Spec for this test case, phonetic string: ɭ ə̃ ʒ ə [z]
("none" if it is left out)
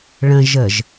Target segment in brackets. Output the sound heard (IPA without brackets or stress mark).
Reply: ʒ